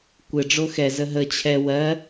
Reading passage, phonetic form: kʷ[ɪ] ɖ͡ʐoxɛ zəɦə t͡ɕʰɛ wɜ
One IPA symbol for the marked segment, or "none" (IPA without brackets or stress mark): ɪ